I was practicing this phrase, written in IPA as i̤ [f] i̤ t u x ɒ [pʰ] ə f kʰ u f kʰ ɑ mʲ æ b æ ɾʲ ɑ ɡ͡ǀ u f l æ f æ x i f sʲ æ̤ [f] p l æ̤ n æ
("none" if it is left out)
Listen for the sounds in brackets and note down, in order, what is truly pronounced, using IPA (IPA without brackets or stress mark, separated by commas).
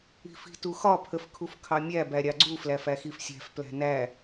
f, pʰ, f